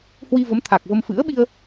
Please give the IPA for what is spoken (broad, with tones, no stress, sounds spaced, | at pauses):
h w i˧ v ə˨˦ m t̪ʰ a˨˩ k̚ v ə˧ m f ɨ̰˧˥ ə̯ ɓ i˧ ə̯